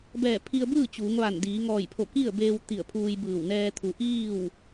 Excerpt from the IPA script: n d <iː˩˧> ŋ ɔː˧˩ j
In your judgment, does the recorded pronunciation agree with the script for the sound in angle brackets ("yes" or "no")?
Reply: yes